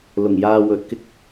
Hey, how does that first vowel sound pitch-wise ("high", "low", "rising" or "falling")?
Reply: low